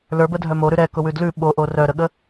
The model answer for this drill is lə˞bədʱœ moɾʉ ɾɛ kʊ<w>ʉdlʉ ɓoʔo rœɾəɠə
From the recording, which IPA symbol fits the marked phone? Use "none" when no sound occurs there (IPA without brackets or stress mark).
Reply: w